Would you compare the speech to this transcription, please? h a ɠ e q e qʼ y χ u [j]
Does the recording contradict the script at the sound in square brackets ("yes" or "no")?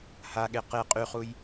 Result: no